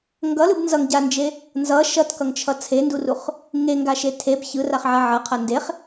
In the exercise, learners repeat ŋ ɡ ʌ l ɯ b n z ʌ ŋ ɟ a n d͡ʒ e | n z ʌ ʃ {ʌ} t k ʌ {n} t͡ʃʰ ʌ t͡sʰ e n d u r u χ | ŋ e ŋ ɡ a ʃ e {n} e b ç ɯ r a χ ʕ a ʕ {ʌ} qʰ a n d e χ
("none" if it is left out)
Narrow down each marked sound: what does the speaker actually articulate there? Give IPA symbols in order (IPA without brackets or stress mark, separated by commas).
ʌ, ŋ, tʰ, ʌ